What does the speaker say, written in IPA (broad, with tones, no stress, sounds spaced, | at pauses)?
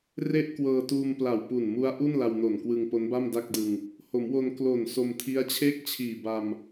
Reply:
r e˥˩ ʔ k w ɤː˧ t uː˧ m p l a˨˩ w p u˨˩ n m u˦˥ a̯ ʔ u˥˩ n l a˧ w n o˨˩ n k w ɯ˧ ŋ p o˦˥ n b a˥˩ m d a˥˩ k̚ d ɯ˧ ŋ | h o˩˦ m w o˧ n k l o˨˩ n s o˧ m tʰ i˦˥ a̯ t͡ɕʰ eː˥˩ k̚ t͡ɕʰ iː˨˩ b a˧ m